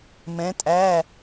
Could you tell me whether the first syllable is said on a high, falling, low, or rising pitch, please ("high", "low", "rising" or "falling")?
rising